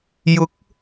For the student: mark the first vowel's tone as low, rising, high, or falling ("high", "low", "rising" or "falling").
rising